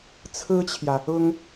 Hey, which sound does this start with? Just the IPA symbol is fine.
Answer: t͡sʰ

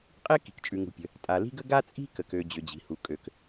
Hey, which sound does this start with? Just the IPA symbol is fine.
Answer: qʼ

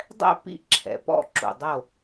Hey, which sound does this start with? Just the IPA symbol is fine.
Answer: dˤ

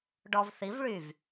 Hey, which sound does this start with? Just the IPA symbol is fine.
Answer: ɖ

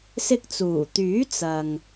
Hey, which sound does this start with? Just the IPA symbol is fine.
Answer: s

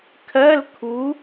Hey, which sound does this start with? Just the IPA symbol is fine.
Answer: kʰ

